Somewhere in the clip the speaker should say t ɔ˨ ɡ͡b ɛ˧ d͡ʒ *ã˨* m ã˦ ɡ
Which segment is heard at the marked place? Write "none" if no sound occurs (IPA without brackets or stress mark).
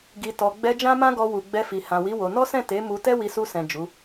ã˦